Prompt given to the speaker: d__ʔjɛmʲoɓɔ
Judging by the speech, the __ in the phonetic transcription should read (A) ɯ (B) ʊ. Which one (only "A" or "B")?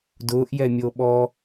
B